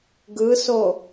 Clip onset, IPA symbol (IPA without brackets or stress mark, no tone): ɡ